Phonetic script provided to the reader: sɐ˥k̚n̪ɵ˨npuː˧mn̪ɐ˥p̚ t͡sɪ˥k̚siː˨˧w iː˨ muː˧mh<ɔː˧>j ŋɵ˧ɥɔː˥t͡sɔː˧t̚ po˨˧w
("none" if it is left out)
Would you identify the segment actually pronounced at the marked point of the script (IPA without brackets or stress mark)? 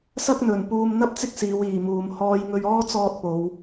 ɔː˥